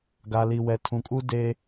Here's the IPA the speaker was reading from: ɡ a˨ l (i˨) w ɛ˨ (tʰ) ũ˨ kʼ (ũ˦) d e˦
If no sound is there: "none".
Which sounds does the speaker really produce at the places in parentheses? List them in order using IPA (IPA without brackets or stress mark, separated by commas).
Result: i˨, tʰ, u˦